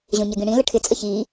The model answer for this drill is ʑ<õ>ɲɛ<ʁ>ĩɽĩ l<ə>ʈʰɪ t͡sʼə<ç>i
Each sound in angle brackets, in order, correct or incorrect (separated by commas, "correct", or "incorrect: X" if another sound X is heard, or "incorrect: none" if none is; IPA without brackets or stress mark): correct, incorrect: ɡ, correct, correct